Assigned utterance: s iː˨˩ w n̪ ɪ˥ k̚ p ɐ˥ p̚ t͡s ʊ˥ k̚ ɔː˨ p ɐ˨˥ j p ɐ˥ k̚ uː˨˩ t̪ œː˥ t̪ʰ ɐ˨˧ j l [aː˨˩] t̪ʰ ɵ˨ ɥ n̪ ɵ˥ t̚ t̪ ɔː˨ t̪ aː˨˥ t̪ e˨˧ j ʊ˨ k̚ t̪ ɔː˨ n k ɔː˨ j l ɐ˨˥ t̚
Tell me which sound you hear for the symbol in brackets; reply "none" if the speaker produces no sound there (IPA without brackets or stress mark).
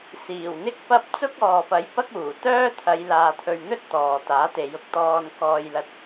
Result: aː˨